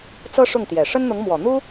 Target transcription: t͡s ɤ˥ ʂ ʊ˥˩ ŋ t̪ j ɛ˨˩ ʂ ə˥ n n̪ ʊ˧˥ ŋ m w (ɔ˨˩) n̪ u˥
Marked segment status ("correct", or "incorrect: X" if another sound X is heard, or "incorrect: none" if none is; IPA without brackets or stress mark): correct